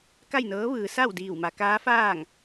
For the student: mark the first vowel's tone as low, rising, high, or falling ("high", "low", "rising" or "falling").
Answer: falling